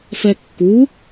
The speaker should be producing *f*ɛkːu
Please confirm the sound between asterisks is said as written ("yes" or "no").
yes